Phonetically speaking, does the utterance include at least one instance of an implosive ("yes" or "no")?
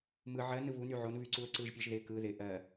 no